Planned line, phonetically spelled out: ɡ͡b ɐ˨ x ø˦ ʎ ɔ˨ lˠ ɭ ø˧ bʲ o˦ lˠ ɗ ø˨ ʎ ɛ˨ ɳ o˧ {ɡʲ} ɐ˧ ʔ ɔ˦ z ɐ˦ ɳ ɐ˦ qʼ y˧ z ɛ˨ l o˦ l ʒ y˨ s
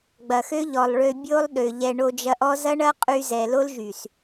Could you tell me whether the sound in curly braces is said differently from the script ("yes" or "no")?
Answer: yes